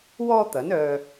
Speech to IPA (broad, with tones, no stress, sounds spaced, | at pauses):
w ɔː˥ t̪ ɐ˨˥ n œː˧